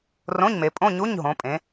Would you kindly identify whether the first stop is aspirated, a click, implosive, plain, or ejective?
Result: ejective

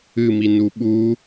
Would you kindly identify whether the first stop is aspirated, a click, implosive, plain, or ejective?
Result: implosive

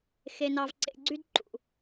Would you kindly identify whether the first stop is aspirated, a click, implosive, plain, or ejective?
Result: click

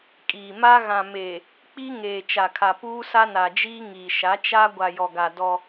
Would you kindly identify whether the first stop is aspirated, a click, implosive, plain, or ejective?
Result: ejective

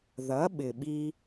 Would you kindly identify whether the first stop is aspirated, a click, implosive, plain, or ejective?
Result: implosive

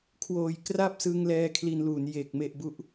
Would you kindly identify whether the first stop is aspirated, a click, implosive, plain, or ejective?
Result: aspirated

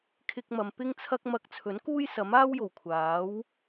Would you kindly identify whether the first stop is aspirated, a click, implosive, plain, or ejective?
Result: aspirated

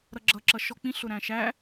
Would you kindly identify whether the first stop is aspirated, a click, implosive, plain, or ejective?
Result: click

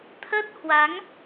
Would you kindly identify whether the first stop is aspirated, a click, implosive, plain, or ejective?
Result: aspirated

